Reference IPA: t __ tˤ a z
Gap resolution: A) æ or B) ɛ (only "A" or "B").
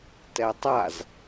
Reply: B